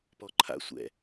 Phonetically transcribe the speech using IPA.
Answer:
p ɔ ǃʰ a̰ sʷ ɛ̰

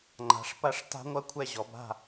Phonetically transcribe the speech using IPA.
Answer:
ŋ͡ǃ a̤˩˧ ʂ p ɐ˦˥ ʂ t a̤˦˥ ŋʷ ɐ˥˨ kʷʰ ɛ˥˨ ʑ ɔ˩˧ b a̤˥˨

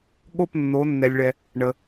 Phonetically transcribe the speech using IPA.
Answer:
ɠ o˥˨ p nː o˩˧ nː ɛ˩ lʲ ɭ ɛ˩ | ɳ ə˩

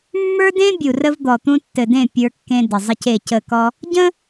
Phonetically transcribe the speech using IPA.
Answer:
mː ə˞˦ d ẽ˦ bʲ u˨ r ə˦ v d̪ ɔ˨ t̪ ũ˦ tː ɘ˨ d ẽ˦˨ pʲ ə˞˦ kː ẽ˦ d ə˨ zˤ ə˦ c e˦˨ c ə˦˨ k ɔ˦ | ɟ ə̃˦

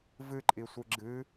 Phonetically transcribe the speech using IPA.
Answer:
v ɨ ǃʼ i sʷ ɨ ɡ͡ǁ ɨ

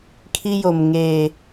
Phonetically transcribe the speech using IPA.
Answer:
kʰ i˦ j o˨ m ŋ eː˨

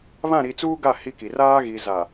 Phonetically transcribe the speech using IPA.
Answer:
β ã˦˨ ɾ i˨ t͡s uː˦ ɡ a˦˨ h i˦ k i˨ r aː˦ ɣ i˨ z a˨

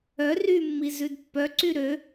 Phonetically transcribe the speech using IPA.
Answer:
œ r y mː i z ʉ d pː œ ǀ y ɾ ø

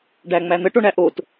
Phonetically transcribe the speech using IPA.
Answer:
ɖ æ ŋ͡m æ n̪ ə ʈ o ɳ æ ʔ o t

